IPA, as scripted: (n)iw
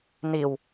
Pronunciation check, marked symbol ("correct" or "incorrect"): correct